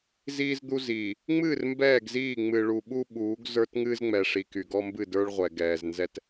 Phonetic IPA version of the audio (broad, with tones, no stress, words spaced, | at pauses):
ziː˦zd̪u˦ ziː˨ | ŋ͡mɨː˦˨r mbɛː˦˨ɡziː˦˨ ŋ͡mɨ˨ ɭu˨ɓu˦ ɓuː˨˦ɡzə˞˦t ŋɨː˦zŋ͡mɛ˨ʂi˨ ky˨ɡɔ˦mbɨ˦˨ də˞˦ɭʁʷɛ˨ɡɛː˨z nzɛ˦t